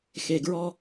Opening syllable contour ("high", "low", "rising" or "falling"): low